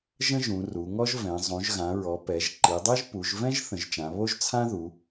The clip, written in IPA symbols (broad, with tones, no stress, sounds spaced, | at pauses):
ʒ ə̃˥ ʒ ũ˩˧ r u˩˧ ŋ ɔ˥ ʒ v ɛ̃˩˧ zˤ ũ˩˧ ʒ ɣ ã˩˧ ɹ ɔ˩˧ p ɛ˩˧ ʒ ǃ i˩˧ dˤ i˥ ʒ p u˩˧ ʒ v ɛ̃˥ ʒ θ ə̃˩˧ ʒ t͡ʃ ã˩˧ β o˥ ʒ t͡sʰ ã˥ ð u˩˧